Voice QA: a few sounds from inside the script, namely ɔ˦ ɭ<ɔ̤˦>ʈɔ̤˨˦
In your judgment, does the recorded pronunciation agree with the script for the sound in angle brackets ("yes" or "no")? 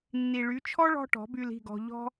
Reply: yes